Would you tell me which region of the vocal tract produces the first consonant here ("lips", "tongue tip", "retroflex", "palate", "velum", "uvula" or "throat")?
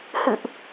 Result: throat